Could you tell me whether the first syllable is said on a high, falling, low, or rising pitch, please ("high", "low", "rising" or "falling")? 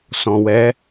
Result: low